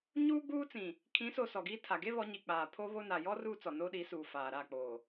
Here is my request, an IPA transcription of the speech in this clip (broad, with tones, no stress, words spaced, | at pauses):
ɲuː˦ɡ͡buː˦t͡sĩ˨ | kʰĩ˨˦so˨ sɔ˨ɡiː˦tʰa˨ ɡe˦ βɔ˨˦ɲi˨k͡paː˨ pʰo˦βo˦ na˨jɔ˦ ruː˦ t͡sɔ˨noː˦ɗi˨˦suː˨ faː˨ ɾa˦˨k͡poː˨